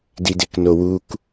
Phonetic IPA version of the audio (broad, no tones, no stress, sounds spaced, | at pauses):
d i d e k n o w u k